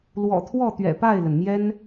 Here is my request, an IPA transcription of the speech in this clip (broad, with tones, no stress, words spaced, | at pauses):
lwɔ̰˨˩t̪ʰwɔ˥˩t̪ɥɛ̰˨˩ pa˥˩ɪ̯lə˩nmjɛ˥n